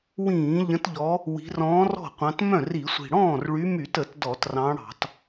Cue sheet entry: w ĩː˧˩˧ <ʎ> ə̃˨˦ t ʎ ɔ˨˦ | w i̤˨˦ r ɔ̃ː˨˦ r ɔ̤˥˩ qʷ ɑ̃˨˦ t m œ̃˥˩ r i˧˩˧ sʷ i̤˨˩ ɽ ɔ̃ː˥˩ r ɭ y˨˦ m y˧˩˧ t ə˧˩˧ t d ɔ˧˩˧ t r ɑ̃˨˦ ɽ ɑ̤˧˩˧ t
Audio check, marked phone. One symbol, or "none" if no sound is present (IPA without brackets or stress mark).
ʎ